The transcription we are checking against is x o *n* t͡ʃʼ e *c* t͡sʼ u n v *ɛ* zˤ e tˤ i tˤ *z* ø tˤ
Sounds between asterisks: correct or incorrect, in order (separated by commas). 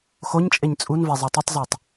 incorrect, incorrect, correct, correct